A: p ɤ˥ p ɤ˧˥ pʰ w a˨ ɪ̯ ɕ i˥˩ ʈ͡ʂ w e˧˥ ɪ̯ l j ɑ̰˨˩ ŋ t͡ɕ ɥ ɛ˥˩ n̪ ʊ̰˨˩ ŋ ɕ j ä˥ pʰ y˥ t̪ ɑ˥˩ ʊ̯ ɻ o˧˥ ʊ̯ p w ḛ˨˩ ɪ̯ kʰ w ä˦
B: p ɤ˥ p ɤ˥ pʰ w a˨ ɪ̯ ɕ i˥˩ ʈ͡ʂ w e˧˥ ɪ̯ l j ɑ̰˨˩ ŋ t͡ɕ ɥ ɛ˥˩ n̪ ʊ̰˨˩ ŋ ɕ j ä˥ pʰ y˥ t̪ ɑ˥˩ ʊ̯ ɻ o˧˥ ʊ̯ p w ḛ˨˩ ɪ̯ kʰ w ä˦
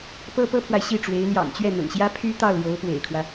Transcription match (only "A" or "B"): B